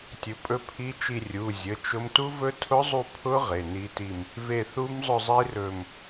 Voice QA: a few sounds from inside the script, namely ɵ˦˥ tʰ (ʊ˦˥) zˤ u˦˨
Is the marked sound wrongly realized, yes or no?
no